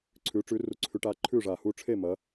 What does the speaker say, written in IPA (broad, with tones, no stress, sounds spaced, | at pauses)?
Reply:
ǀʰ ʉ˨˦ ʈ͡ʂ ʉ˨˦ r u˨˦ ǀʰ ʉ˨˦ ʈ aː˨˦ ǃʰ ʉː˥˩ ʐ aː˧˩ h uː˥˩ ʈ͡ʂʰ e˥˩ m ɐ˨˦